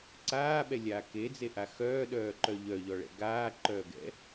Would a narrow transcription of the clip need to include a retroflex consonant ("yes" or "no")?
yes